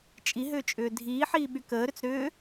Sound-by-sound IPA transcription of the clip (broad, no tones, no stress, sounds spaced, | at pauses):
t͡ʃʼ i ɦ ʏː t͡ʃʼ ʏː dʱ iː ħ iː ɓ y k əː ɾ ʏ t͡s ɾ ʏː